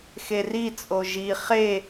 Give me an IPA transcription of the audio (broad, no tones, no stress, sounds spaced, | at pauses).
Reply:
x e r i t͡sʼ o ʒ i χ e